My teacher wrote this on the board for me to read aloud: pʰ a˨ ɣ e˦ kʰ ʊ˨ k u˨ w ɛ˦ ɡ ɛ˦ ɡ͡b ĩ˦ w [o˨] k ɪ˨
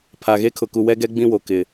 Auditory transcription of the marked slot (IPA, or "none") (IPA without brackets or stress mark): o˨